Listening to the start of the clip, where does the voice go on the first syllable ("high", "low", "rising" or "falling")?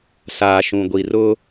low